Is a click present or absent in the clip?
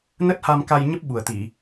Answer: absent